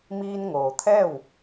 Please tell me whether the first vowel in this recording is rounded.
no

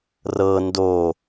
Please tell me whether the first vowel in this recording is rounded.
no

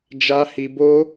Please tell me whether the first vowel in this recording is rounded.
no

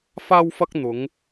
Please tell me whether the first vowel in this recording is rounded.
no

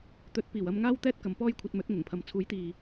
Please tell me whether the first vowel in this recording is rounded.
yes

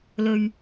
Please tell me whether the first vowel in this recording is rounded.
yes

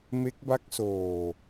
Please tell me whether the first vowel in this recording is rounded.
no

